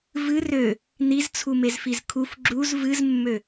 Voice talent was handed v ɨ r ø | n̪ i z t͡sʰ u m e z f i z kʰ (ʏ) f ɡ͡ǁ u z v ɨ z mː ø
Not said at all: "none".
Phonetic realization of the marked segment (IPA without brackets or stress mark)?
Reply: u